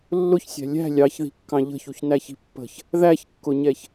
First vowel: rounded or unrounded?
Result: rounded